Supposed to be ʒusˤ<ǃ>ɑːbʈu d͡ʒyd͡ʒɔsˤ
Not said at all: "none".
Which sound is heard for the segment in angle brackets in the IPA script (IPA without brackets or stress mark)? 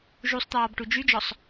t̪